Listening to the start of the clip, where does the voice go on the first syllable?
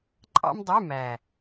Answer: high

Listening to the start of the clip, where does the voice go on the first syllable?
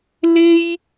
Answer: high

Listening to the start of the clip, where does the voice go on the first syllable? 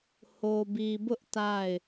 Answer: low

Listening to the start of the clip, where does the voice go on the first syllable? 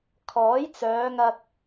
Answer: rising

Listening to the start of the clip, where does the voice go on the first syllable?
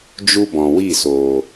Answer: high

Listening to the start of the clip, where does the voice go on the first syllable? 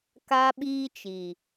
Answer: high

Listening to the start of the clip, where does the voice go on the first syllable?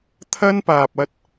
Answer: high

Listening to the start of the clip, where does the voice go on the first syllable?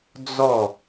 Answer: falling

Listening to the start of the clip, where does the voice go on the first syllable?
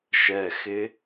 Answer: low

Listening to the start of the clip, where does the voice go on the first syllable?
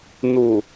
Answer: low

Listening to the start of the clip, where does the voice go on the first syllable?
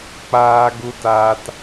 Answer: high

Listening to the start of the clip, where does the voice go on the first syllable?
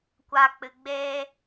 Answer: low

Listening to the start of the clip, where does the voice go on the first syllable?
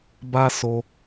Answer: high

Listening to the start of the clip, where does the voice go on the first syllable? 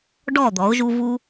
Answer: falling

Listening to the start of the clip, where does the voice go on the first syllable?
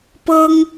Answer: high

